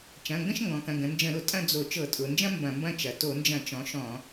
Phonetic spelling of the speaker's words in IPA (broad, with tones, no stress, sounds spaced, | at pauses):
t͡ʃ ɐ̃˩˧˩ ŋ ɡ ə̃˥˧ ʃ ŋ ɡ ɔ̃˩˧ k ɐ̃˩˧˩ ɡ ə̃˩˧ n d͡ʒ ə̃˧˩˧ ɾ ʊ˧˩˧ tʼ ɐ̃˥˧ d͡z o˧˩˧ t͡ʃ ɤ˧˩˧ tʼ ʊ˩˧ n d͡ʒ ɐ̃˥ m b ɐ̃˧˩˧ m b ɐ̃˥˧ t͡ʃ ɐ˩˧ t o˧˩˧ n d͡ʒ ɐ̃˧˩˧ t͡ʃ ɔ̃˩˥ ʃ ɔ̃˧˩˧